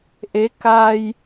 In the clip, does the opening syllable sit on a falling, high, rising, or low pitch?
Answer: rising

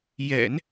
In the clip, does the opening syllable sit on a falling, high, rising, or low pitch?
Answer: low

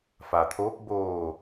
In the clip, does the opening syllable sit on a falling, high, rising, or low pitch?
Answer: low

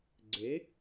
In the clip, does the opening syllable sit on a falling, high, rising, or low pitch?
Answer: rising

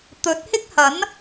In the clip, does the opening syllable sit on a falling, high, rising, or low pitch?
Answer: rising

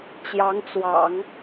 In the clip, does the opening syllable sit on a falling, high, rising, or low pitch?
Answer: rising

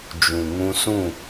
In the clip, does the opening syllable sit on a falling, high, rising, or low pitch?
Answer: low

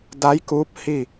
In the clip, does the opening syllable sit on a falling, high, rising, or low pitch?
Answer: rising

